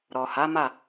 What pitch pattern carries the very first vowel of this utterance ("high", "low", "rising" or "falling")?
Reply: low